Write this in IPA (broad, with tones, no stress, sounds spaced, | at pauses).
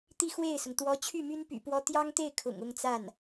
t̪ i˥˧ x w e˥˩ ɪ̯ s ʊ˩ ŋ t̪ w ɔ˧˥ t͡ɕʰ y˥˩ m y˥ n p y̰˨˩ p w ɔ˥ t̪ j ɑ˥ ŋ t̪ e˥˩ ɪ̯ kʰ ʊ̰˨˩ ŋ ʊ˥˧ ŋ t͡s a˥˩ n